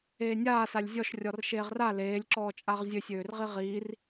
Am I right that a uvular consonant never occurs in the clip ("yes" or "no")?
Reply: no